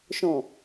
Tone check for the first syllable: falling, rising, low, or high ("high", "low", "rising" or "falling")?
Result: low